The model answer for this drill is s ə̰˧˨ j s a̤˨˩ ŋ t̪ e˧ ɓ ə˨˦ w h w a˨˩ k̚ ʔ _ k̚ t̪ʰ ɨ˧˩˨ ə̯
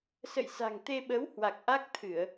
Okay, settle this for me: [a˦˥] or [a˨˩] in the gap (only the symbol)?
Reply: a˦˥